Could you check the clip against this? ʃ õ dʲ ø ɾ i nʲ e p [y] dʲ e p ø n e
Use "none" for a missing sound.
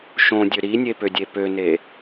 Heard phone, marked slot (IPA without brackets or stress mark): ø